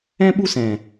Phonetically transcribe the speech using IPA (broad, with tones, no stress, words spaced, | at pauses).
ɛ̃˦ɓu˦sɛ̃˨